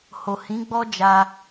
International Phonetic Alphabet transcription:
h o˨ h ĩ˨˦ ɡ͡b ɔ˦ d͡ʒ a˧

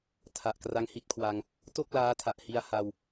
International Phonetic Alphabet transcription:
tʰ a˨˩ ʔ k r a˦˥ ŋ h i˦˥ t̚ kʰ w a˧ ŋ | t o˥˩ k̚ l aː˦˥ tʰ a˨˩ ʔ h i˧ a̯ h a˧ w

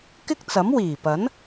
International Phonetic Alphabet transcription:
k ɪ˥ k̚ t͡s ɐ˨˥ m w iː˨˩ p ɐ˨˥ n

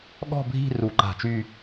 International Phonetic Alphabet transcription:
ɠ ɔ̤˥˧ bʱ i̤˥˧ r u˧˩˧ ǃ a̤˧˩˧ t͡ʃ y˥˧

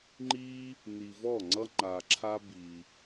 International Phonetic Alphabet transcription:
ŋ͡ǃ i˦ | n i˨ v ɔ˥˩ ŋ͡ǀ ʌ˦ ŋ͡ǃ a˨ ǁʰ a˦ b i˨

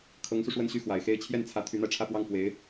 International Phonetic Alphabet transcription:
kʰ ɤ˧˥ ŋ s u˧ ʂ w ə˥˧ n ɕ y˥˩ x w a˨˩ ɪ̯ x e˥ ɪ̯ t͡ɕʰ j ɛ˥˩ n t͡sʰ ä˧˥ t̪ʰ y˧˥ n̪ a˧ ɪ̯ ʈ͡ʂʰ ä˥˧ p w ɑ˥˩ ŋ f w e˧˥ ɪ̯

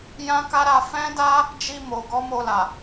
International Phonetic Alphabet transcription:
j ã˦ k a˦ ɾ a˧ f ɛ̃˦ d a˦ | d͡ʒ i˧ m o˨ ɡ ɔ˨˦ m o˧ l a˨

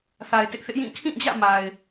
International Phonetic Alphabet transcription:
θ a˨ ɪ̯ t ɪ˦ ʔ θ ɪ˦ ʔ j ĩ˦˨ kʰ ĩ˦˨ d͡ʑ ä̰˦˨ m a˨ ɪ̯

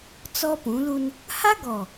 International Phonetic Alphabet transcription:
t͡s ɔ˦ p ũ˨˦ l u˦ n | h a˦ ɡ ɔ˨

